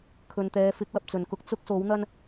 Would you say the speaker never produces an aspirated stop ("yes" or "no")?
no